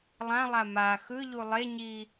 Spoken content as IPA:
lˠ ã lˠ a m a x ɯ ʎ u lˠ e ɲ i

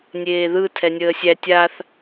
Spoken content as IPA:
nʲ eː ð ɯ tʰ ɛ nʲ əː sʲ æ tʲ a θ

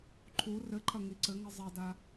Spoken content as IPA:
ǃʰ u r ɘ ǃʰ ɐ ŋ i ǀ ɘ ŋ ɨ zˤ ɛ d a

